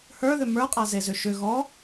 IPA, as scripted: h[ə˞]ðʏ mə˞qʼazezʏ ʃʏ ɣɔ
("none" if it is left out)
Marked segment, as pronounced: ə˞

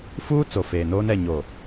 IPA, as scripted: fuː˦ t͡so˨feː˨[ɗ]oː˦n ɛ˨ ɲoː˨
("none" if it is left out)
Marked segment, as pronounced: n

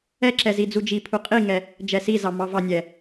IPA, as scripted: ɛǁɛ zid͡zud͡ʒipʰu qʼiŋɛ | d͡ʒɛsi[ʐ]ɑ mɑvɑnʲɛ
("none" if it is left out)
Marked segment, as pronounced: z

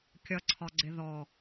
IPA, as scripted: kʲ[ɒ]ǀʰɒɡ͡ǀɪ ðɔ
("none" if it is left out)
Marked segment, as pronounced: ʌ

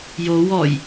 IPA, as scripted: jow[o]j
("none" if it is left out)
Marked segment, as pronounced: ɔ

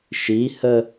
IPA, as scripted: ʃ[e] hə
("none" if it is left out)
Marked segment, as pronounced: i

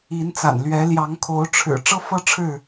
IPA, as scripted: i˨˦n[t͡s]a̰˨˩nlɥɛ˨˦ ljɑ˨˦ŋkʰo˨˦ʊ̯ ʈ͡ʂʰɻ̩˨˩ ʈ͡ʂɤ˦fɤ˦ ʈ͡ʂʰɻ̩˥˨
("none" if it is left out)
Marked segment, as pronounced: t͡s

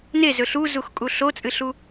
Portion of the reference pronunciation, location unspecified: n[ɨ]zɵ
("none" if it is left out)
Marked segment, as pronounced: e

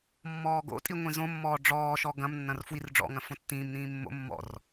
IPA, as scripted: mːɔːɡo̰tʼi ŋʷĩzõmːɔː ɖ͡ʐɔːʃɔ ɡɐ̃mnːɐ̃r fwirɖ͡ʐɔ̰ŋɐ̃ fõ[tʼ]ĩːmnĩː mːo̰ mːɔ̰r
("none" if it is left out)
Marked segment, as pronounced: tː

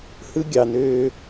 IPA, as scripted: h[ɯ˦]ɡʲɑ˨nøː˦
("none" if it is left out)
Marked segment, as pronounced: ɯ˦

